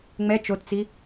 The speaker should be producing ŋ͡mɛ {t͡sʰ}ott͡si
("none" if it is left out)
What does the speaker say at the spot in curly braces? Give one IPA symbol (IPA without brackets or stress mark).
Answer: t͡ʃ